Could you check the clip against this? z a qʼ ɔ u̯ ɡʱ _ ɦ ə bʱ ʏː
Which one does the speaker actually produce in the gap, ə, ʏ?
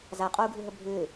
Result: ʏ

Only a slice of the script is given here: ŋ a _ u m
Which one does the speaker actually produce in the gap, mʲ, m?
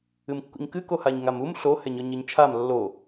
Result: m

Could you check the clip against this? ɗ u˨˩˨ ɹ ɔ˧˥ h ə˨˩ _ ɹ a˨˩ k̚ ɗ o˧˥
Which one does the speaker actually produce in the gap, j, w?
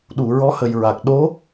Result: j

